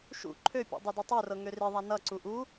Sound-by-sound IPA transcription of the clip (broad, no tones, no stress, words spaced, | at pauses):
ʃṵ ǃʰøpʲṵ dˤødutˤørɤ ŋøriðˤa nʌǀu ʔu